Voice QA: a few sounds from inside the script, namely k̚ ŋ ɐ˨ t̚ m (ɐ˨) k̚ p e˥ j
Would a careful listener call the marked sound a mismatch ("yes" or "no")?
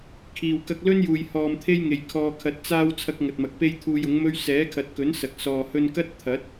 no